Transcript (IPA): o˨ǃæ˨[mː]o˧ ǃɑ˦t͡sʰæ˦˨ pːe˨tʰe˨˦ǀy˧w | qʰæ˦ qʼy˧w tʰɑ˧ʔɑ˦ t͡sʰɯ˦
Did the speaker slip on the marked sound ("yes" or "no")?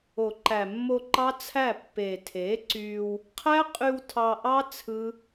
no